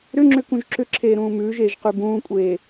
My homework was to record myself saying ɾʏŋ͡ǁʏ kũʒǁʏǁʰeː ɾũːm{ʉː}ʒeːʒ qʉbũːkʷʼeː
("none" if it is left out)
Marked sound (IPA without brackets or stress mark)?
ʉː